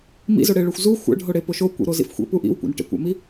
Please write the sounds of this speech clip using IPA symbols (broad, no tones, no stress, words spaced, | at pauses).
mḭzoɽeɭoxʷ zu xʷæ̰ɖʱoɽepo ʃokʷḭɾozḭf xʷḛpu ʔḭwkʷḛn ʈḛkʷæ̰mi